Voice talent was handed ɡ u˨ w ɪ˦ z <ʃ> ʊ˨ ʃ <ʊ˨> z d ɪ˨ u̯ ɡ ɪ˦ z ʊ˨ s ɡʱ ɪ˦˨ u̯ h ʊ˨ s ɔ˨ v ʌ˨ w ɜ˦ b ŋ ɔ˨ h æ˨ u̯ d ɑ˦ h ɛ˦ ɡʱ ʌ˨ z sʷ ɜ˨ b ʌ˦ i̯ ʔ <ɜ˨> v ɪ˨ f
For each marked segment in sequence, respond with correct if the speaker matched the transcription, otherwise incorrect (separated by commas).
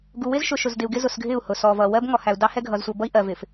correct, correct, correct